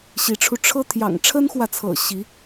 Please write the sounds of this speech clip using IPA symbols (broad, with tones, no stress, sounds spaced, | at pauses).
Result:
ɕ i˧˥ ʈ͡ʂʰ u˧ ʈ͡ʂʰ ɤ˥ t̪ʰ j ɑ̰˨˩ ŋ ʈ͡ʂʰ ə˥ n x w ä˨ t͡sʰ ɤ̰˨˩ ɕ i˧˥